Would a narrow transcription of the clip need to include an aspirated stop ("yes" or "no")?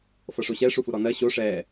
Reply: no